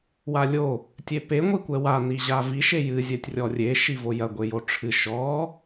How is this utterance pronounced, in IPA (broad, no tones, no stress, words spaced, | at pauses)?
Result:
walʲo | tʲepe ŋʷikʷɛwa niʑavi ʃejɨ zʲɛtʲrʲɔrʲe ʃivojɐ ɡʷejoʈ͡ʂʰɨ ʃɔ